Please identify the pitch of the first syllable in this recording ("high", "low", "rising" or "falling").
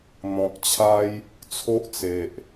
low